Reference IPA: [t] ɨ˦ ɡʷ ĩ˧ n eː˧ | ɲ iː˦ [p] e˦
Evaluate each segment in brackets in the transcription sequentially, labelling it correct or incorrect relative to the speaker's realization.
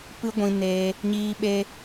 incorrect: p, incorrect: ɓ

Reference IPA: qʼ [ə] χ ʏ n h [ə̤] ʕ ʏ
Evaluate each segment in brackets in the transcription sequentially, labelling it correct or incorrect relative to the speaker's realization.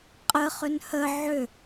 correct, incorrect: ə

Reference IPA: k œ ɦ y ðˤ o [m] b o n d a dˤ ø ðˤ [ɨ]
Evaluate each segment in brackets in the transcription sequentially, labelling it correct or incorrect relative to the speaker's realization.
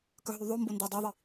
correct, incorrect: i

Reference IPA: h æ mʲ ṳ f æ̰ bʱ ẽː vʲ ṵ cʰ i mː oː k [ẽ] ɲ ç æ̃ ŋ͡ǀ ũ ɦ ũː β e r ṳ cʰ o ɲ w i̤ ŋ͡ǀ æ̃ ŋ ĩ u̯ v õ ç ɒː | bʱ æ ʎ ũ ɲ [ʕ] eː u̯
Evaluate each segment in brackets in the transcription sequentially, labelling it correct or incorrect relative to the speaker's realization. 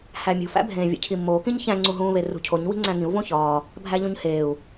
incorrect: ĩ, incorrect: h

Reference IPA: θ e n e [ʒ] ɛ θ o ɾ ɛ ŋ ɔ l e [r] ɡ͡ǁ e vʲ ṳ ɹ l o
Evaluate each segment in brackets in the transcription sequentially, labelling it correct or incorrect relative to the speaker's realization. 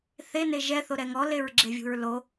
correct, incorrect: ɹ

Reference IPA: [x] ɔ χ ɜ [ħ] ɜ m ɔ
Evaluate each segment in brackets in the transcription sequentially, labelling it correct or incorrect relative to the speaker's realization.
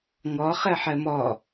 incorrect: ŋ, correct

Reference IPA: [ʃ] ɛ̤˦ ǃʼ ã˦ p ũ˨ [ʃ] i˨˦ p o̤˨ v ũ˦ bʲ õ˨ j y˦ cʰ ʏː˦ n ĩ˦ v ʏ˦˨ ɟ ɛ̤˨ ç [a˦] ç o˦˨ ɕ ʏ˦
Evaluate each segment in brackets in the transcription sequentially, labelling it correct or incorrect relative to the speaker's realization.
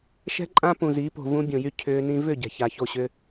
correct, incorrect: z, incorrect: a˨

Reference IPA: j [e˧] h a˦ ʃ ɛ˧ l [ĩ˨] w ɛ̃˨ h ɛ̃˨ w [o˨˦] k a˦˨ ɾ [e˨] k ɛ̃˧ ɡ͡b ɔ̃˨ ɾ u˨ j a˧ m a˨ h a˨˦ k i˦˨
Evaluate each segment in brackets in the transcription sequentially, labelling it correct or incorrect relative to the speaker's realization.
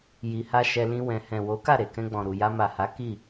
incorrect: i˧, incorrect: ĩ˧, correct, correct

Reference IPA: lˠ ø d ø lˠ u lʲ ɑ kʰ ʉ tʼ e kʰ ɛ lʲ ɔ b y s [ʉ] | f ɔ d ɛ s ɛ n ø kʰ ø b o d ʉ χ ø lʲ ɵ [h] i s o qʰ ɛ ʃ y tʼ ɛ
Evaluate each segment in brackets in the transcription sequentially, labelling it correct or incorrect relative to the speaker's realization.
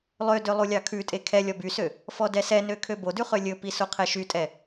incorrect: ø, incorrect: p

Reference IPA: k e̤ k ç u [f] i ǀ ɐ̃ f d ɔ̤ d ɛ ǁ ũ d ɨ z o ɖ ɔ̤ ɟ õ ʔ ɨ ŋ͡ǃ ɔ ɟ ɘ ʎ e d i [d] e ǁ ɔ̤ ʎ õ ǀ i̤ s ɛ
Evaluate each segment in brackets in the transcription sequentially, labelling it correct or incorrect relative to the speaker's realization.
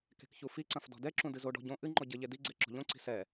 correct, incorrect: ɡ͡ǀ

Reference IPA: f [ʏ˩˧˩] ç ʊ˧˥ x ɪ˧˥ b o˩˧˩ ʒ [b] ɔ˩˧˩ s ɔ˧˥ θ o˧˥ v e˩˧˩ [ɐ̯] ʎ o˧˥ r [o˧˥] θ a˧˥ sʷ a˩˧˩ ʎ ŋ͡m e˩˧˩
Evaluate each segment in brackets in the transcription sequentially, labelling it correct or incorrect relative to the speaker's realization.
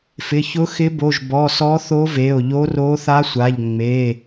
incorrect: ɪ˩˧˩, correct, incorrect: o̯, correct

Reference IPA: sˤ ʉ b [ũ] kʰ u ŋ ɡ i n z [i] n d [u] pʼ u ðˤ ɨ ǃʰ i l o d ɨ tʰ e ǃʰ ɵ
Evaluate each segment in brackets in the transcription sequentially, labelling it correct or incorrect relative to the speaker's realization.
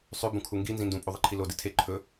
correct, incorrect: ĩ, incorrect: ũ

